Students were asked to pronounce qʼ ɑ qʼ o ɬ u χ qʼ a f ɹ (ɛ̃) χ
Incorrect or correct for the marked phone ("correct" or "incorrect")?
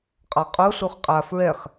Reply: incorrect